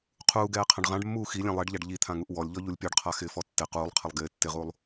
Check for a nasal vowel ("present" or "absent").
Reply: present